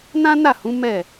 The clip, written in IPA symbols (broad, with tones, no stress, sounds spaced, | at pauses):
n ã˦ n a˦˨ h ũ˨˦ m ɛ˦˨